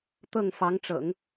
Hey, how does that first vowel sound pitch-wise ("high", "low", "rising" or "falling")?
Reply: falling